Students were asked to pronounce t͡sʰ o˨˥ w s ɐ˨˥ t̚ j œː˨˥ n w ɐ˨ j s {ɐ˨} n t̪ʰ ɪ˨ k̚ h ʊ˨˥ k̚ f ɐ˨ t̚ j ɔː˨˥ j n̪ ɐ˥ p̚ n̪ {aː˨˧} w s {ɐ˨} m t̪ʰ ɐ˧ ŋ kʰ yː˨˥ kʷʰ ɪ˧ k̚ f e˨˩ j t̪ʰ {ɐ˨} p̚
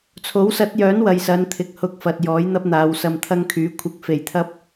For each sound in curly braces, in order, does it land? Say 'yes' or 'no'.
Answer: no, yes, yes, no

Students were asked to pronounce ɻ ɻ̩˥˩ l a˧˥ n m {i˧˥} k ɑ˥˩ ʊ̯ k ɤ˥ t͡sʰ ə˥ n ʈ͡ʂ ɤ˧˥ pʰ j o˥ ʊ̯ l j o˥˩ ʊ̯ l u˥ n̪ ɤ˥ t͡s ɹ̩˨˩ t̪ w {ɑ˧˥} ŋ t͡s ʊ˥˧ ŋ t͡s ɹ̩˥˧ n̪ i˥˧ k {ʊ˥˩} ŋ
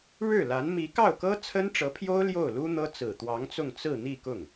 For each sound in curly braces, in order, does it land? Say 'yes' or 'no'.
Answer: yes, yes, yes

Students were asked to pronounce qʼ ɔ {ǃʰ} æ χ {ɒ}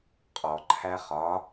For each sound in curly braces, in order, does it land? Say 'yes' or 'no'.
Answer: yes, yes

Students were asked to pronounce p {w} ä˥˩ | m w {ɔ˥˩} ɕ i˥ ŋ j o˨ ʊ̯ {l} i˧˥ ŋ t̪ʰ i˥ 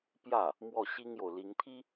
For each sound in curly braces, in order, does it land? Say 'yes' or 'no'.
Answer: no, yes, yes

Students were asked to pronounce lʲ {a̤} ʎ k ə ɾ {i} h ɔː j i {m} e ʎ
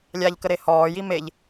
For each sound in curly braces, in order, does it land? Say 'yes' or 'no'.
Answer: no, no, yes

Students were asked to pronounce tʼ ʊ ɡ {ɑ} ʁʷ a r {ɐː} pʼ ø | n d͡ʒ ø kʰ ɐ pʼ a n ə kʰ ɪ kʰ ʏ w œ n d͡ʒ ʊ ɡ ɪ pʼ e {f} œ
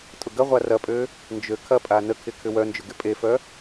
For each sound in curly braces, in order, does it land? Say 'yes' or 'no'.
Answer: no, no, yes

